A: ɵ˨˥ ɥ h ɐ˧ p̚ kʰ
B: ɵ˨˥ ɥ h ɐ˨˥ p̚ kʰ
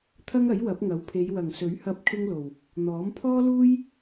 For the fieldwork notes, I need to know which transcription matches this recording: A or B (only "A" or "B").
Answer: A